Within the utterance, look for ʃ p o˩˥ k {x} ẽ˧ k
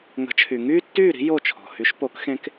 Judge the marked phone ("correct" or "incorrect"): correct